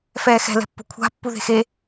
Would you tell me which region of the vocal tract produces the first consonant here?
lips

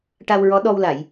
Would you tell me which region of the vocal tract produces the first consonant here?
retroflex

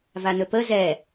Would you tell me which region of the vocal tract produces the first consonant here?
lips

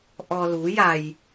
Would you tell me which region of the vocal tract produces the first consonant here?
throat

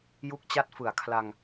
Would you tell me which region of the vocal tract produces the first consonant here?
palate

